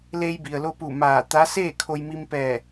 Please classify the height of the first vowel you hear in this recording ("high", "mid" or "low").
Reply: mid